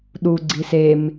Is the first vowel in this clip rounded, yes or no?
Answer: yes